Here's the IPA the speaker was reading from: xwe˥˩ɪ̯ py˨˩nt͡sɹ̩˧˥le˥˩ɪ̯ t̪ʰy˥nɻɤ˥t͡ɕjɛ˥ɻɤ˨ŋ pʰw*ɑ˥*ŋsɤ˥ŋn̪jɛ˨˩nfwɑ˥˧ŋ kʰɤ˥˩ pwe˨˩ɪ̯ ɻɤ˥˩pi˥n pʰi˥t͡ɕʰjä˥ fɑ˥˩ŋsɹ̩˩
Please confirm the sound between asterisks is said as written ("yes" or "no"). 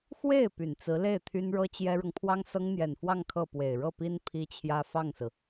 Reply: yes